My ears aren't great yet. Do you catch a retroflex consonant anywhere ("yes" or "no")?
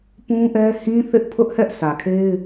no